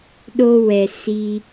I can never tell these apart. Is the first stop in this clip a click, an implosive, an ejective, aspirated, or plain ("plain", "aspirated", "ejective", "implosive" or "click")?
implosive